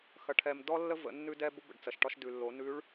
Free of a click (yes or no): yes